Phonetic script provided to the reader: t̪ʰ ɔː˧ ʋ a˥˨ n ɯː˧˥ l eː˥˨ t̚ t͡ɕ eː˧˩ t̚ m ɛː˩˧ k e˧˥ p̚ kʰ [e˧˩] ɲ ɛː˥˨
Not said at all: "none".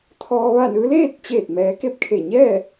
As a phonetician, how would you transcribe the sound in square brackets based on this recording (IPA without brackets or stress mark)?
e˧˩